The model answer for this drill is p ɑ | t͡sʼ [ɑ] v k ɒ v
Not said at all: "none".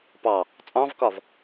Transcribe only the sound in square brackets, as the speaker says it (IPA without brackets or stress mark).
ɑ̃